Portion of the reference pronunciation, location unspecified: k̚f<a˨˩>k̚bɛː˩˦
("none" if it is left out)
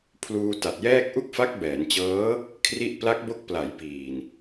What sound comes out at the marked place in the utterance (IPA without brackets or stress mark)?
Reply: a˦˥